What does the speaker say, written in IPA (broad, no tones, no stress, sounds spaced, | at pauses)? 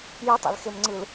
j ɯ tˤ a̰ l x e m ŋ͡ǀ ɯ l